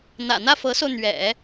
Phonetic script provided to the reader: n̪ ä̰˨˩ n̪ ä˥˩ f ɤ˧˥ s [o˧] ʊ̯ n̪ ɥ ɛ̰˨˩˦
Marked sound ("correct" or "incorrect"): correct